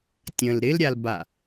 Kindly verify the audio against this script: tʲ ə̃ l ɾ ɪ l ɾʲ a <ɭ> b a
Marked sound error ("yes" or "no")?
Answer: yes